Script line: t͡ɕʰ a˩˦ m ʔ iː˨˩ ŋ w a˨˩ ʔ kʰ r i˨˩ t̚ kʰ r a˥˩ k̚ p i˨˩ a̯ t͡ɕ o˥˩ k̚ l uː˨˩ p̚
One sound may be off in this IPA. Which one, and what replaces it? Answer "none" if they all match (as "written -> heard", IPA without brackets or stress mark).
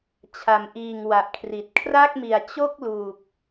p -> m